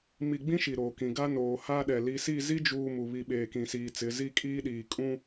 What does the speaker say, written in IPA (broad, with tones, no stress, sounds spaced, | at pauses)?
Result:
m i˨ ɡ͡b ĩ˦ ʃ i˨ ɾ oː˨ k ĩ˨ ɡ a˦ n oː˨ h a˦ ɗ ɛ˨ l i˨ s i˦˨ z i˦ d͡ʒ uː˨ m u˨ β i˨ ɓ eː˨ k ĩ˨ s iː˨ t͡s ɪ˨˦ z i˦˨ kʼ iː˦ ɗ iː˨ kʼ ũ˦